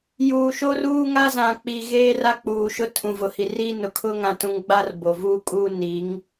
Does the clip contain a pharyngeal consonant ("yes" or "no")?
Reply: no